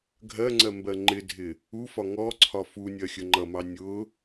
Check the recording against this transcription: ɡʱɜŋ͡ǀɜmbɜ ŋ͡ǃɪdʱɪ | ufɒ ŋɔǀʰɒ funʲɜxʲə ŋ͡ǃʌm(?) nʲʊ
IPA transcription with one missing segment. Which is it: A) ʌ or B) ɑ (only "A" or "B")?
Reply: B